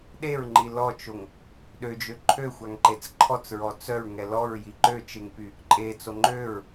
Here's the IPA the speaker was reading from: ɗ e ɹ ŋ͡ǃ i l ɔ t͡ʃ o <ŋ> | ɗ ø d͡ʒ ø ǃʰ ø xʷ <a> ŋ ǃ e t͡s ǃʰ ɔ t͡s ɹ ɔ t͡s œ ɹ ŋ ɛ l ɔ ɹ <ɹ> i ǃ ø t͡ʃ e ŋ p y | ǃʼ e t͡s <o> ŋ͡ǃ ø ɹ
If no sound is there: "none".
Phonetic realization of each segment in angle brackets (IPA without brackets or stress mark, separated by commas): ŋ, a, j, o